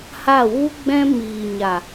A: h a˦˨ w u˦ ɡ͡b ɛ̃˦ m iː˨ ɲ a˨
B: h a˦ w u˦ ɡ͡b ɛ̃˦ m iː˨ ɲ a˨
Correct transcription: A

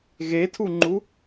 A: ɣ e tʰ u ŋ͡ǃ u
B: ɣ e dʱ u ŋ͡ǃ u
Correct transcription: A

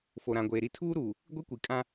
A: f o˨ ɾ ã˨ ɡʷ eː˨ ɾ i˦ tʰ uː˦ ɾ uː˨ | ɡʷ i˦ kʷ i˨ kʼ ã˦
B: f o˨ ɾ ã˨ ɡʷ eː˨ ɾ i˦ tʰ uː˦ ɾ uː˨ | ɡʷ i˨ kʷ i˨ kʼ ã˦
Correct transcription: A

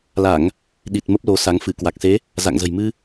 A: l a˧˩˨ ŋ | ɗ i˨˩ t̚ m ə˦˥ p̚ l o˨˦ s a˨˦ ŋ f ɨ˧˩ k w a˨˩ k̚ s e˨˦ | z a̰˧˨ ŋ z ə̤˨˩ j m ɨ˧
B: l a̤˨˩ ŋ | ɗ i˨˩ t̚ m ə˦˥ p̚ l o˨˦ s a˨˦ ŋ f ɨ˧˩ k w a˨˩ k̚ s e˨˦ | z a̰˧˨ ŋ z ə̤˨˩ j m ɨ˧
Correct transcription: A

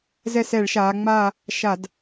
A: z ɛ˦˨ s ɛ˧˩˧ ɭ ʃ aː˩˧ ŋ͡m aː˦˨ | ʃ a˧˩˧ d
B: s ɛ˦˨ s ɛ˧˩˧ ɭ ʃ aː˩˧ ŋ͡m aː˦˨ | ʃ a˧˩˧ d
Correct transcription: A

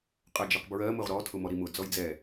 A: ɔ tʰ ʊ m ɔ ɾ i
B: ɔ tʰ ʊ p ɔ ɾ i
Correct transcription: A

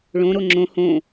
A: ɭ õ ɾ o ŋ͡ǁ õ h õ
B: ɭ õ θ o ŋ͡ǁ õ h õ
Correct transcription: A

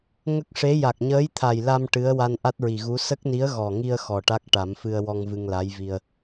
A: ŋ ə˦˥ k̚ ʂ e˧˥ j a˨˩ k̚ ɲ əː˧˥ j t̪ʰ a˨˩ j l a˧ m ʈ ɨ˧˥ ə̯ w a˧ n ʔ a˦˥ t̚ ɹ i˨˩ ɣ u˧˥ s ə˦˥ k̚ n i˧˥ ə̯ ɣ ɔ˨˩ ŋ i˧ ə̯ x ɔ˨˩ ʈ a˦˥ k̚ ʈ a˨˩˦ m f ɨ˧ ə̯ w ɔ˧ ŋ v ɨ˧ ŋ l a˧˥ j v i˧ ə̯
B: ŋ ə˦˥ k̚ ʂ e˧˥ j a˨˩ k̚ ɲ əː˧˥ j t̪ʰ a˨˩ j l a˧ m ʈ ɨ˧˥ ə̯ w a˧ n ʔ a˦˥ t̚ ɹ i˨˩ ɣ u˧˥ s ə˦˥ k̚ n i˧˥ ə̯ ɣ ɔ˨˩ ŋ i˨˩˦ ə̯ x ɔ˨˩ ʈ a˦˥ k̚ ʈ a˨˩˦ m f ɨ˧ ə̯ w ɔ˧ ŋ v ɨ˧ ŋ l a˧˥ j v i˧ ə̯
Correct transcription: A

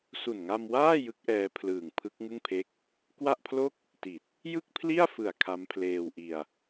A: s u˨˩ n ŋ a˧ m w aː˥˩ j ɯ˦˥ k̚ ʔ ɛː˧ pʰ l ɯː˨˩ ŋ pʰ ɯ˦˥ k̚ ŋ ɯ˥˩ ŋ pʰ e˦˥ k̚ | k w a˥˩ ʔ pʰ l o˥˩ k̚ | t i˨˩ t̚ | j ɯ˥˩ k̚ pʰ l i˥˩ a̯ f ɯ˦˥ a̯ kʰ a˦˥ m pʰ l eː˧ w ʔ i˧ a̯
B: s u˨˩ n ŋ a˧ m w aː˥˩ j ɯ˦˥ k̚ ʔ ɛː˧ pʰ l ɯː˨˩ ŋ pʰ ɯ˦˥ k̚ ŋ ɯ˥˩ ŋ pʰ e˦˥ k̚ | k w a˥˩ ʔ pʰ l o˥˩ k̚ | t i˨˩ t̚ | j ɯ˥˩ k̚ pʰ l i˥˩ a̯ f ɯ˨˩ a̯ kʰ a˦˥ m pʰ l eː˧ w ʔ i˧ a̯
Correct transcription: B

